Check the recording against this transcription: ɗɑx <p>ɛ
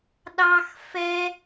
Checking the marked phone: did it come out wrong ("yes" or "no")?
yes